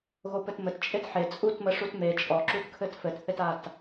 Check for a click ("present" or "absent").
present